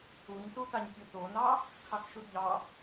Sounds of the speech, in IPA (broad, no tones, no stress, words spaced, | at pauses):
uɲsutaɲ tʲotonɑ | kʰɑkʃudʎɑ